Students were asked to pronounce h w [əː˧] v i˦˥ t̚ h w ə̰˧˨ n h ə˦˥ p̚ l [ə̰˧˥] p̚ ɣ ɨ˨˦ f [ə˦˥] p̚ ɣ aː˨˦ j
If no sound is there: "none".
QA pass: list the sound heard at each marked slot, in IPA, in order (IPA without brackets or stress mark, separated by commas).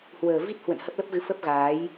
əː˨˩, ə˦˥, ə˦˥